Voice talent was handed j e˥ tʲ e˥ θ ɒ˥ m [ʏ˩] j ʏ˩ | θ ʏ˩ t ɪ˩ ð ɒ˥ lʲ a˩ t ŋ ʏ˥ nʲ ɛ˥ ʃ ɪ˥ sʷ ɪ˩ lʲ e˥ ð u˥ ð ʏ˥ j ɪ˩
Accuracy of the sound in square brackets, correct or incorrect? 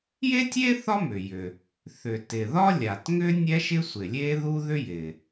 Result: correct